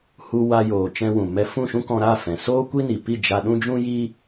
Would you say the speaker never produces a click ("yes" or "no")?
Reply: yes